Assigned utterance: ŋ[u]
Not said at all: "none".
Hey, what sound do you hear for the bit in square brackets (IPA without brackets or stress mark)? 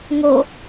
o